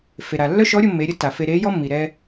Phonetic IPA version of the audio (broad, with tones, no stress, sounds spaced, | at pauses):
f e˩ ɾ a˩ lː œ˥ ʃ ɔ˧˥ ɾʲ o˧ mː e˩˧ ɾʲ ə˧˥ t a˩ f e˧ ɾ e˧˥ j ɔ˥ mː i˩ ɾ ɛ˧